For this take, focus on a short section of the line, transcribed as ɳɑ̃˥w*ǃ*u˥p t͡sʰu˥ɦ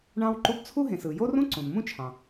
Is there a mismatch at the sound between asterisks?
no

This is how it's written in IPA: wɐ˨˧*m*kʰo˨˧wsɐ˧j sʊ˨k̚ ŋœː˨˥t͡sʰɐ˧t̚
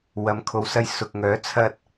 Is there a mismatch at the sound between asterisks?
no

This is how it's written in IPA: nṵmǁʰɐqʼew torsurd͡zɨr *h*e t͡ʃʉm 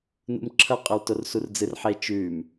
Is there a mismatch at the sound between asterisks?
yes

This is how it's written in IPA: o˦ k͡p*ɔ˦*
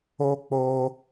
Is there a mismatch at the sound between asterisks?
yes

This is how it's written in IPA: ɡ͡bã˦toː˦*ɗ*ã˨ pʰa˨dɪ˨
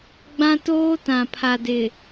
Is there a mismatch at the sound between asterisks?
yes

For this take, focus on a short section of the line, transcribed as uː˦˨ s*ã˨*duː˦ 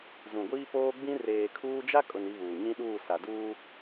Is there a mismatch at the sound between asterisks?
yes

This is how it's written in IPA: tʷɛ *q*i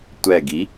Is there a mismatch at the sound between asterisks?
yes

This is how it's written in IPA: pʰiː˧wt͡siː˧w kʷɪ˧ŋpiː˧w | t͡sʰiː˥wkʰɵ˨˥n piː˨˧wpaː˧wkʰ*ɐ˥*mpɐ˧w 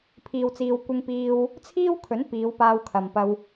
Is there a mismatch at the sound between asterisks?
yes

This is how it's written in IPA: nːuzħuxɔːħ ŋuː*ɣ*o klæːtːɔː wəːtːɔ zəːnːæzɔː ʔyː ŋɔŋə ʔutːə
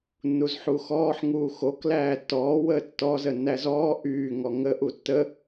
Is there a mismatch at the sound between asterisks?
yes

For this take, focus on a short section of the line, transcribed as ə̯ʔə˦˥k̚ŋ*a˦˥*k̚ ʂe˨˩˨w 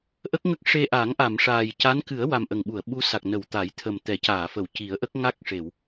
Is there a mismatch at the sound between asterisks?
no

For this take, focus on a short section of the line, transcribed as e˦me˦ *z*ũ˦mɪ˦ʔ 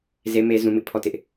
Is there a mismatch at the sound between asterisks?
no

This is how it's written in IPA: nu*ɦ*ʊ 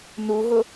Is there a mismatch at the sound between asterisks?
no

